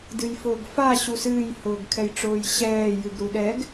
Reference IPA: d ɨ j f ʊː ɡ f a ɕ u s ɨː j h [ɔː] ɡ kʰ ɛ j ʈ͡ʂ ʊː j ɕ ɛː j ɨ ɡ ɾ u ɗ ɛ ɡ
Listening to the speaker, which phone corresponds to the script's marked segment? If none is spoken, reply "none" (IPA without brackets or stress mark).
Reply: ʊː